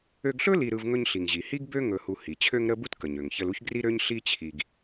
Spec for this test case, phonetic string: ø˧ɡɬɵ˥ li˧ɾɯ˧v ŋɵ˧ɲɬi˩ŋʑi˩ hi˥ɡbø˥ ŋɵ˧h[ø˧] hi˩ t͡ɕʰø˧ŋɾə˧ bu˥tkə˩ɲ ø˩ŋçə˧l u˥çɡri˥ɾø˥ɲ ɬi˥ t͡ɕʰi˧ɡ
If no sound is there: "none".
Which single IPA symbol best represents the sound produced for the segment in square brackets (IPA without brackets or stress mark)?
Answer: u˧